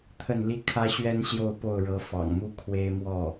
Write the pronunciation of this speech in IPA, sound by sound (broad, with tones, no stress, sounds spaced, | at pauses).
t̪ʰ ə˥˩ n l i˥ kʰ ä˥ ɕ ɥ ɛ˥ n ɕ j o˥˧ ʊ̯ p o˥˩ ʊ̯ ɻ ɤ˧˥ f ɑ̰˨˩ ŋ m u˥ kʰ w e˥ ɪ̯ m w ɔ˥˩